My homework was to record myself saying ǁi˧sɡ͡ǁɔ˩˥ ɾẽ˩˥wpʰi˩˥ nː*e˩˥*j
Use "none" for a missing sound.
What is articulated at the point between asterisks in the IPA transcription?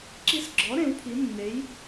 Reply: e˩˥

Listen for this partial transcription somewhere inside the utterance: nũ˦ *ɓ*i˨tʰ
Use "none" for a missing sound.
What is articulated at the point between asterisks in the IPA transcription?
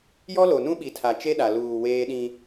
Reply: ɓ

